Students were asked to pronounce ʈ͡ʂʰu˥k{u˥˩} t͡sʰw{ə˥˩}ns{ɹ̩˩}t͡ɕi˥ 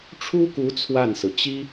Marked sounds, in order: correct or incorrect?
incorrect, incorrect, correct

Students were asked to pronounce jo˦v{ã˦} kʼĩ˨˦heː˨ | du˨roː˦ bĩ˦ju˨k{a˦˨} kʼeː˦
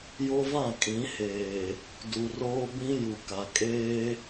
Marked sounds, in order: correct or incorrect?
incorrect, incorrect

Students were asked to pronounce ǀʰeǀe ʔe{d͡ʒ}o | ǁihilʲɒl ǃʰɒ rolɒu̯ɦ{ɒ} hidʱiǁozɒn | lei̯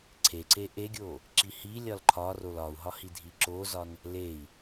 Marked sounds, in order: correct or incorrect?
incorrect, correct

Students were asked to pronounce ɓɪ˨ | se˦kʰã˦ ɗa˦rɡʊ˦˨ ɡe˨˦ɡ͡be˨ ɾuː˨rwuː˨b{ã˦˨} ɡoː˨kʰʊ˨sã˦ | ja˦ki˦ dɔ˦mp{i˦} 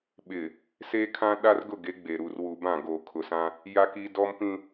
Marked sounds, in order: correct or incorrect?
correct, incorrect

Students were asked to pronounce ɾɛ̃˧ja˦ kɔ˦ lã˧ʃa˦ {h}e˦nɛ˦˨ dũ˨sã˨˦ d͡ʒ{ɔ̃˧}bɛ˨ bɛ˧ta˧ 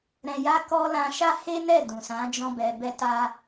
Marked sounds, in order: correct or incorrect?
correct, correct

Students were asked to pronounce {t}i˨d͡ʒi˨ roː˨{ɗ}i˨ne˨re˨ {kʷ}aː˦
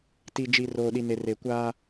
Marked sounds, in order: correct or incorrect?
correct, correct, correct

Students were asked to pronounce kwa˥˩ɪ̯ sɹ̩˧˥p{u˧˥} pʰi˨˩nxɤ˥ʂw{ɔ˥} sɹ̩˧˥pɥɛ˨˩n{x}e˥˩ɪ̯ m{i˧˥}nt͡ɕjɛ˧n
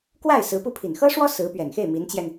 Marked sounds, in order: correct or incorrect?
incorrect, correct, correct, correct

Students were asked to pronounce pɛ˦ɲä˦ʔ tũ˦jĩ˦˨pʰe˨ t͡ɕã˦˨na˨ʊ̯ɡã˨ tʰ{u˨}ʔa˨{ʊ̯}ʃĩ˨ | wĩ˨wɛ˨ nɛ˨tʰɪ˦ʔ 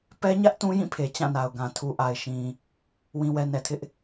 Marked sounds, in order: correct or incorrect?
correct, incorrect

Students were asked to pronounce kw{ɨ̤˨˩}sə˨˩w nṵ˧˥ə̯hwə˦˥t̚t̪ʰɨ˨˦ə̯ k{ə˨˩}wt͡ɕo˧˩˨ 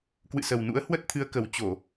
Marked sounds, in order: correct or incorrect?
incorrect, correct

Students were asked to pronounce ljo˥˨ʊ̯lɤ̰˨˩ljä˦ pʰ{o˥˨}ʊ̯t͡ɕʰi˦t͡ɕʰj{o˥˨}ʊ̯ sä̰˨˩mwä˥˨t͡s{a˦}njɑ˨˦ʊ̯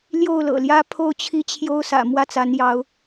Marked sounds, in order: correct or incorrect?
correct, incorrect, incorrect

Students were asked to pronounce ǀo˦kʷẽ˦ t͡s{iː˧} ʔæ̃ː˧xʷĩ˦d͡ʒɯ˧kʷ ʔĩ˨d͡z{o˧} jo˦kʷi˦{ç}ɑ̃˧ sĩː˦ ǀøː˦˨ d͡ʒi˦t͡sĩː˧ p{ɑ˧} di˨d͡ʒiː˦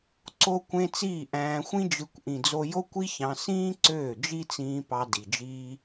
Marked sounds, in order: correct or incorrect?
incorrect, correct, correct, correct

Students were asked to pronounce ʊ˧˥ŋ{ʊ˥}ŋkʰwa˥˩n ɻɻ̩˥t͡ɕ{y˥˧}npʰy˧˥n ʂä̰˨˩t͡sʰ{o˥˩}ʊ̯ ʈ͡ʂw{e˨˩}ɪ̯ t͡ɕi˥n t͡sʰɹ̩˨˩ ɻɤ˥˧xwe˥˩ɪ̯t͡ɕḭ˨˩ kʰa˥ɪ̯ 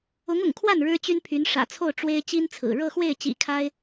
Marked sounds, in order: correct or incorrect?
incorrect, incorrect, correct, incorrect

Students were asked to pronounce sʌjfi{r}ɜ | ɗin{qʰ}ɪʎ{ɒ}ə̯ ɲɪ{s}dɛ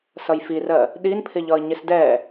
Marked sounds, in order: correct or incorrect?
correct, incorrect, correct, correct

